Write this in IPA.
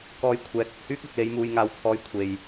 k ɔː˧ j kʷʰ ɛː˨˥ k̚ ɐ˨ k̚ h yː˥ k̚ ɐ˨ k̚ l e˨˧ j m uː˨ j ŋ aː˨˧ w t͡sʰ ɔː˨˧ j kʷʰ e˨ j

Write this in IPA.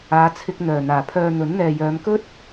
aː˨˧ t͡sʰ ɪ˧ k̚ n̪ œː˨˩ n̪ aː˨˩ pʰ œː˨ n̪ ɵ˨˥ n n̪ ɛː˨ j œː˨˧ m k ɵ˥ t̚

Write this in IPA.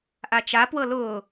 ʔ a t͡ʃ a p w ɤ l ʊː

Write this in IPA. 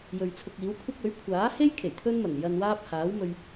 j ɵ˨ ɥ t͡sʰ ʊ˧ k̚ iː˨˥ w kʷʰ ɐ˥ k̚ ɵ˨˥ ɥ kʷʰ aː˨˥ h e˥ j kʰ e˨˩ j t̪ʰ ɵ˥ n m ɐ˨˩ n j ɐ˧ n w aː˥ p̚ h aː˨˥ w m ɵ˧ ɥ

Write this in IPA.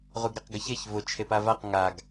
ʁ u ɡ ɾ ɛ q ɡ ə ç e ç v ʊ t͡ʃʰ e p a v a q ŋ a ɡ

